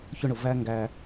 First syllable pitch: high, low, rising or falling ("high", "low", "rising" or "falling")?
high